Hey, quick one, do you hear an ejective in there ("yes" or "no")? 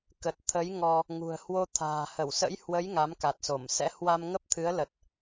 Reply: no